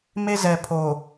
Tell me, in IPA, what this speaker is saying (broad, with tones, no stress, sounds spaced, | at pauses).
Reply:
m e˦ z ɛ˨ pʰ o˨